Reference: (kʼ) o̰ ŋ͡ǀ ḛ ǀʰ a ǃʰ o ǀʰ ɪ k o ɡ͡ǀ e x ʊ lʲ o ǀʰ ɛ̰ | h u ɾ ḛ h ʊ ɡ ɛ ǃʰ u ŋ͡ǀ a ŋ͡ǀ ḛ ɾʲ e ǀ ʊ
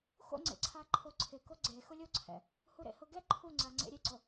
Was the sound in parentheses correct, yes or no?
no